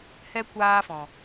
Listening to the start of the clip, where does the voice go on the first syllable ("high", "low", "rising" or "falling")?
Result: high